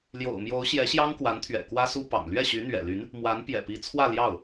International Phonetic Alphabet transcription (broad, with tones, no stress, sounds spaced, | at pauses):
l j o̰˨˩ ʊ̯ m j o˧˥ ʊ̯ ɕ j ɛ˧˥ ɕ j ɑ˥ ŋ k w a˧˥ n t̪ʰ ɥ ɛ̰˨˩ k w ä˥ s u˥ p ɑ̰˨˩ ŋ l ɥ ɛ˥˩ ɕ y˧˥ n̪ ɥ ɛ̰˨˩ l y˧˥ n | m w a˧˥ n p j ɛ̰˨˩ p i˧˥ t͡sʰ w ä˥˧ l j ɑ˥˩ ʊ̯